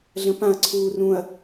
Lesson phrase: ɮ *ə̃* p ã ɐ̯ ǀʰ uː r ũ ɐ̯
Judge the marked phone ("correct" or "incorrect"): correct